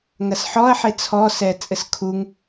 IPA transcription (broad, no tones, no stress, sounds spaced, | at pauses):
ŋ ɐ s ħ ɔ ɐ̯ ħ e t͡sʰ ɔ s ɛ t͡sʼ ɘ s kʰ u ŋ